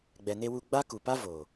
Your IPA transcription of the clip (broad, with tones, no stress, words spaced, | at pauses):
ɡ͡bɛ˨ne˧wu˧ ɡ͡ba˦ku˨pa˦ vo˨